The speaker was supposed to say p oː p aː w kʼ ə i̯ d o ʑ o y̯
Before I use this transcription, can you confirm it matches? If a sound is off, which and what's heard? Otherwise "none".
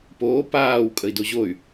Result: none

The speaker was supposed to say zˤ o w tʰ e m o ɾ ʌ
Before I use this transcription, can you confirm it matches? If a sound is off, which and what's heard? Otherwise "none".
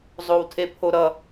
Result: m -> pʰ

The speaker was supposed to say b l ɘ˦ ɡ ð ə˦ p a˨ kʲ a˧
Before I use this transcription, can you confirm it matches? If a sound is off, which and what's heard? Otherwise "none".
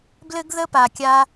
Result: none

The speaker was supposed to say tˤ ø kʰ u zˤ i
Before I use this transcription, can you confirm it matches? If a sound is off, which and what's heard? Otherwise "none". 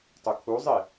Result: none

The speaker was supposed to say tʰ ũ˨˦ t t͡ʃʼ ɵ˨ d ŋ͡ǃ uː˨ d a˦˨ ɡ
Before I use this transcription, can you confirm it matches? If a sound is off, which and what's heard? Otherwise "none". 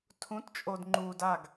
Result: ɵ˨ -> o˨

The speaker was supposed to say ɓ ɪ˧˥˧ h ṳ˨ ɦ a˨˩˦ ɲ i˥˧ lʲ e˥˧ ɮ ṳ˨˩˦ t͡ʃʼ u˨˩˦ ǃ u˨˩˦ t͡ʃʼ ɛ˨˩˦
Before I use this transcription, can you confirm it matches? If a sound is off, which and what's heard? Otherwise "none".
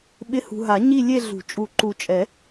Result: none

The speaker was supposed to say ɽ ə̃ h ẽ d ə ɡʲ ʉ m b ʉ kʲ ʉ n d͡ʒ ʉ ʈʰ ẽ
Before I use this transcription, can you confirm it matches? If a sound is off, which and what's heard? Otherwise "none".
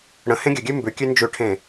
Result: d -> ɡʲ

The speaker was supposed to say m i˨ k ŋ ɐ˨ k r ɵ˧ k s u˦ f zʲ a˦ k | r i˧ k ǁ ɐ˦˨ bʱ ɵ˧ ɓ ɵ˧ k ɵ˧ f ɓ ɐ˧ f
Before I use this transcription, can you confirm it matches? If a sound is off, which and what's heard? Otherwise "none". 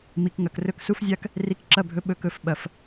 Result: none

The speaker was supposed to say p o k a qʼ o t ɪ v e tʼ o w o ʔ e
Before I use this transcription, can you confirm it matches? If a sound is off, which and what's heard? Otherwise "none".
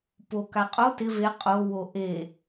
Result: tʼ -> qʼ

